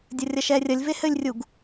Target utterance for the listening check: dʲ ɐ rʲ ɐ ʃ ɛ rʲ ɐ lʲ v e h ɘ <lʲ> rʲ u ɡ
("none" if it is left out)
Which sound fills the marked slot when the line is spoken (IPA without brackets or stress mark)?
lʲ